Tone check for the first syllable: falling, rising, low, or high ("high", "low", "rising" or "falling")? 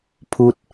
high